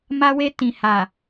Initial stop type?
plain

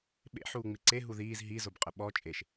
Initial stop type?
implosive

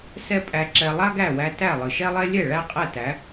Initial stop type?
ejective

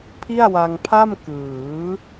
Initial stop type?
aspirated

